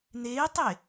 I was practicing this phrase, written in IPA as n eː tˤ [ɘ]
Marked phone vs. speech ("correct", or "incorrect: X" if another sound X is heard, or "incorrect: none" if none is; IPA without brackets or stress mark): incorrect: e